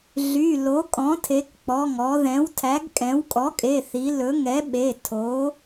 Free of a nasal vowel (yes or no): no